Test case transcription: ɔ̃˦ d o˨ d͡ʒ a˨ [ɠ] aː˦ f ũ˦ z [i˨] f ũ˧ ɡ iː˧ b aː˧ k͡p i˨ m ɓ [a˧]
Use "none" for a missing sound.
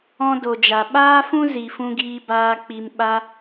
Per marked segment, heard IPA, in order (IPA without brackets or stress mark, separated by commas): ɓ, i˨, a˧